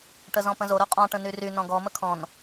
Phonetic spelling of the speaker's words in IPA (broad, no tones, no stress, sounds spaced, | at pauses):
ʈ ə z ɔ̃ p ə̃ z o ɾ o qʼ ɔ̃ ʈ ə̃ n y r y n ɔ̃ ɡ ɔ m ə kʰ ɔ̃ n